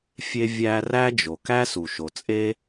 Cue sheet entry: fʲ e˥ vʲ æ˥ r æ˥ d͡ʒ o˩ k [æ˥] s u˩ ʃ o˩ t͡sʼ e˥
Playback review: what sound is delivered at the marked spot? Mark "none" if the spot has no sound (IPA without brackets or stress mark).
æ˥